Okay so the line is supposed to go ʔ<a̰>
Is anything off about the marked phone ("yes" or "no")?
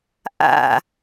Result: no